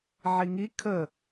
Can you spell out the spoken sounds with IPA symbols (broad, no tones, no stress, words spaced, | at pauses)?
ʕiŋi kʰə